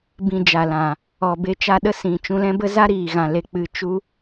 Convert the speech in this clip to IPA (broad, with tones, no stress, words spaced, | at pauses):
bĩ˨ d͡ʒa˨lã˨ | ɔ˨be˧ t͡ʃa˧ɗə˦ sĩ˨ t͡ʃũ˧lɛ̃˦bə˦ za˦ɾiː˨ɣã˨ le˨k͡pɨ˨ t͡ʃu˦